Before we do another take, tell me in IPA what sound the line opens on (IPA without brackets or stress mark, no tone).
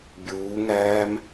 bʲ